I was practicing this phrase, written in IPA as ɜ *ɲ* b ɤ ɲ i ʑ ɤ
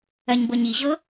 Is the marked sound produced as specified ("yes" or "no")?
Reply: yes